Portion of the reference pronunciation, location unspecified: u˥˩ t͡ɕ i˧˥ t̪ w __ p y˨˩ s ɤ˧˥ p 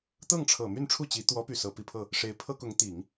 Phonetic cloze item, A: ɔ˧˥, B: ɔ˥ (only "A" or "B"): A